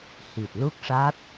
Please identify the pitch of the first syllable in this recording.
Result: low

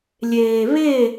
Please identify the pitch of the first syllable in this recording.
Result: low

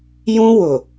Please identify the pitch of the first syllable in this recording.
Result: high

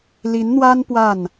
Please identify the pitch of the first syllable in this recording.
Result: rising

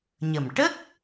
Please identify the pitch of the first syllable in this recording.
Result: low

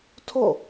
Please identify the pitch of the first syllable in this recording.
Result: falling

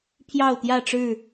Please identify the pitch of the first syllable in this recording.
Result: falling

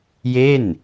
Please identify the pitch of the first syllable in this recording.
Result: falling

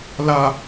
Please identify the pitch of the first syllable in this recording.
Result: low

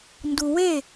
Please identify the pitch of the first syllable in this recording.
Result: high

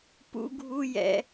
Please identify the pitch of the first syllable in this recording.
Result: high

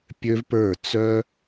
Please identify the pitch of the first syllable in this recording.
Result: high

